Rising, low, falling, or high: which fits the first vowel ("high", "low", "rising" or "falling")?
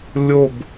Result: falling